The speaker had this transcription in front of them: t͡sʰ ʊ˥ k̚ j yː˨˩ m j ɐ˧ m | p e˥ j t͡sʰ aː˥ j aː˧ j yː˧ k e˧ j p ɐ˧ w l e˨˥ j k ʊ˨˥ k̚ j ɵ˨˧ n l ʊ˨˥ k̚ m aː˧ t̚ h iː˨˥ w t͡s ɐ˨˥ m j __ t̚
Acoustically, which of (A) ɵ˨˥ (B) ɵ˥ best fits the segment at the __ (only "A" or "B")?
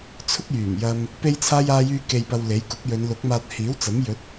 A